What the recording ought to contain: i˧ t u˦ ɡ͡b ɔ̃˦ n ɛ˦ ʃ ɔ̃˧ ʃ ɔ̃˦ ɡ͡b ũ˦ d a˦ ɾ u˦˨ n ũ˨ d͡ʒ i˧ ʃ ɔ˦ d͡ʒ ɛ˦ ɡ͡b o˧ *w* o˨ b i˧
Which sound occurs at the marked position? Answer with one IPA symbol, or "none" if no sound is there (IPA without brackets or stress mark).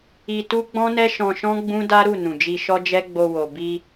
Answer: w